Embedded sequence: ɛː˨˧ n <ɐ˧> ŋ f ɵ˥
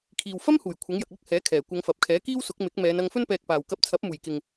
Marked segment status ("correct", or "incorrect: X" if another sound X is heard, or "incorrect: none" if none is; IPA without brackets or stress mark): correct